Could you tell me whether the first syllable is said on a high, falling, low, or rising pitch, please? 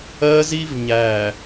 high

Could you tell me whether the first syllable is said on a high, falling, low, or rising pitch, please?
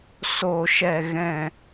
low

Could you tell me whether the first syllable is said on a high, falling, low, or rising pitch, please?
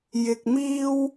high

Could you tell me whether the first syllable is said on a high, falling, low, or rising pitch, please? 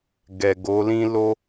low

